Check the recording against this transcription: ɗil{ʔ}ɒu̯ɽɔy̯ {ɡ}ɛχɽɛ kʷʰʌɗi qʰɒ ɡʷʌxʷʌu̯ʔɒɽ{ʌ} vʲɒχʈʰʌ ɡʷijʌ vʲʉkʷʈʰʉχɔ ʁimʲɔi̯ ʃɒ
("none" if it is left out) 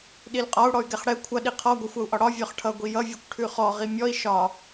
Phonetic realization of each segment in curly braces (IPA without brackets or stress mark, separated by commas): qʼ, ɡ, ɒ